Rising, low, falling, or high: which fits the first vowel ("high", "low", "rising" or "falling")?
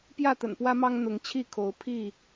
falling